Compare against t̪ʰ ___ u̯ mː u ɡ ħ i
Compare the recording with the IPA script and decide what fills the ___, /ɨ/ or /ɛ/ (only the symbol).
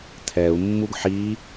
ɛ